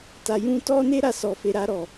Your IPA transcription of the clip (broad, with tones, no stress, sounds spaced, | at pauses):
t a˨ j ũ˧ t ɔ˦ n e˦ ɾ a˧ s ɔ˨ f e˨ ɾ a˧ ɾ ɔ˨